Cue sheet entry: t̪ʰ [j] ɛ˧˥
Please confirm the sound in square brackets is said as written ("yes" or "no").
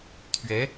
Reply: no